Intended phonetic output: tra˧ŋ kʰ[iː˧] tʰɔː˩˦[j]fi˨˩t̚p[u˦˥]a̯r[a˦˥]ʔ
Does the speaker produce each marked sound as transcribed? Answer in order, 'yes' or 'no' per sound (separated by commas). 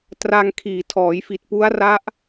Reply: no, yes, yes, yes